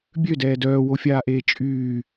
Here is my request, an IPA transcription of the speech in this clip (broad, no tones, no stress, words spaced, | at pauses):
bʲødɛː dœːwofʲaːʔeː t͡ʃʼyː